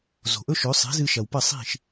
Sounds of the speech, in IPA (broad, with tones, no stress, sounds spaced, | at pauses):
z o̤˩ ʔ ɵ˥ ʃ ɵ˩˥ sˤ e̤˩˥ z ɨ˧ ʃ ɐ˩ w p ɐ˥˩ sˤ i̤˥˩ ʃ